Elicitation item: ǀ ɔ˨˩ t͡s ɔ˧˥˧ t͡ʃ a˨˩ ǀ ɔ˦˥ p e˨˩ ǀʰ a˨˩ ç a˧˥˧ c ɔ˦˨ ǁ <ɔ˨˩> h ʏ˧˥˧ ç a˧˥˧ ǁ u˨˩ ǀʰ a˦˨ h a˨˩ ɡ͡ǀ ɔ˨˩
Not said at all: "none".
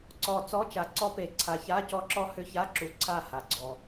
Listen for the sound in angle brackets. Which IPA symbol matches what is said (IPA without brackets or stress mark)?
ɔ˦˥